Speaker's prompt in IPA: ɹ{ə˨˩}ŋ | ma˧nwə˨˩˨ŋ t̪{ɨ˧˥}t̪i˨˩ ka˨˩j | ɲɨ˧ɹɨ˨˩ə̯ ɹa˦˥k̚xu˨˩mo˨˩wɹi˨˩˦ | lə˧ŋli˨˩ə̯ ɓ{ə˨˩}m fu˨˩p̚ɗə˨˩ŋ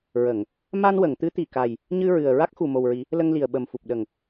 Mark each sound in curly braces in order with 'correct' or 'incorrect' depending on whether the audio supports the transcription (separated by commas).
incorrect, correct, correct